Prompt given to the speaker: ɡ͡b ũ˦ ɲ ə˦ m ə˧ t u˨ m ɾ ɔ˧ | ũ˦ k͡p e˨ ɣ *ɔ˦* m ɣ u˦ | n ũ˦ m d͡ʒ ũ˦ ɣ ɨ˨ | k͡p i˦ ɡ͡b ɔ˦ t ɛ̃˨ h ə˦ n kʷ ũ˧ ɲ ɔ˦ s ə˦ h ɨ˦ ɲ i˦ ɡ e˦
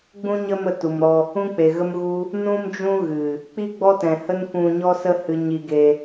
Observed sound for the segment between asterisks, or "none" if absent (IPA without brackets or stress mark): ə˦